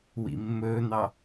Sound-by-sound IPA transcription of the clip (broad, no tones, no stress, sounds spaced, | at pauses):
w ḭ mː ɵː n̪ ɑ